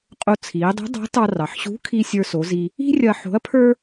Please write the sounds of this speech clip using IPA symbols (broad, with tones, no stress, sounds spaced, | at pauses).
qʼ o˧ t͡sʰ iː˩˧ dˤ ṳ˧˥ dˤ ɑ̤˧˥ t ɑ˧ r ɑ˩ ħ ɕ ṳ˧˥ kʰ i˧ sʲ ə˞˧ s o˩˧ z i˧ | i̤˥ rʲ ɐ˧ ħ o̤˧˥ ɐ̯ pʰ ə˞˥